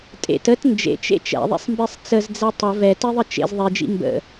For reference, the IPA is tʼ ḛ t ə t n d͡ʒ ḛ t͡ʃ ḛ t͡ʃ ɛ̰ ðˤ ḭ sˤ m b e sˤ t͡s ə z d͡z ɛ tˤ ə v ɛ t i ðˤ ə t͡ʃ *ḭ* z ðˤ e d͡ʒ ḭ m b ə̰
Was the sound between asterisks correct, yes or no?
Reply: no